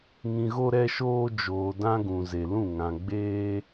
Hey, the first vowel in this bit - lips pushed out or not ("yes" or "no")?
no